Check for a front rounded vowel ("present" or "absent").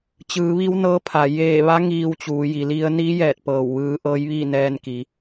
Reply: absent